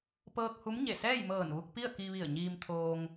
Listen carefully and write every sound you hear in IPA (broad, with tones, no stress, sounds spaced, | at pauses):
p ɤː˧ k̚ h u˧˥ m ɲ e˧˩ s ɛː˥˨ j m ɤː˧˩ n ʋ u˧ k̚ p i˥˨ ə̯ k i˧ ʋ i˧˩ ə̯ ɲ iː˧ m t̪ʰ oː˧ ŋ